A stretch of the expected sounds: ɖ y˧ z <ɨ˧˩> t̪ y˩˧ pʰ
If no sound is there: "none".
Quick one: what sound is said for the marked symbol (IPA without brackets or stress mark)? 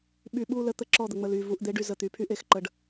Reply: ə˧˩